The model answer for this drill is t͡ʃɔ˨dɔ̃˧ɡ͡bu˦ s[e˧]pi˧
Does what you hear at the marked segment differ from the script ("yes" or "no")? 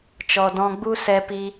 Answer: yes